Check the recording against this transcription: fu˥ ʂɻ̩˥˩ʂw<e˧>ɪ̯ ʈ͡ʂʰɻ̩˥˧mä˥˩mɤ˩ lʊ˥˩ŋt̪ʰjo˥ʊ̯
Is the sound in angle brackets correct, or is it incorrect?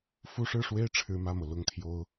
incorrect